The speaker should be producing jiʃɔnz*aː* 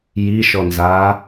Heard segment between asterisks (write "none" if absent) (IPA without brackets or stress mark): aː